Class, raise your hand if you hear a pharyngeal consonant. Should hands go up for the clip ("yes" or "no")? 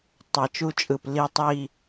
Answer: no